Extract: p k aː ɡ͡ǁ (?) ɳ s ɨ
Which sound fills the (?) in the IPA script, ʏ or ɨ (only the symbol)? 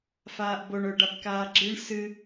ɨ